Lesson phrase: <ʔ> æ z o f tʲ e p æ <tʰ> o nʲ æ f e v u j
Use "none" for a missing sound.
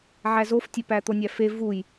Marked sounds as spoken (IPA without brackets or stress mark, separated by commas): ʕ, t̪